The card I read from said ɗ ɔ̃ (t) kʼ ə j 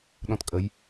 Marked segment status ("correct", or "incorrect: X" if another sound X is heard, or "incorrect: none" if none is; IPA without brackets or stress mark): correct